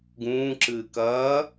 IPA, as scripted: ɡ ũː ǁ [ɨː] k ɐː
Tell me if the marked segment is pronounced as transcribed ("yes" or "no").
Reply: yes